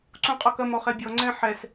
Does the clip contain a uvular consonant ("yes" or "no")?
yes